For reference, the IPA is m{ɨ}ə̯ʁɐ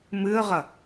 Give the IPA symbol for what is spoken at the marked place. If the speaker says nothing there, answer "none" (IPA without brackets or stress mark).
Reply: ɨ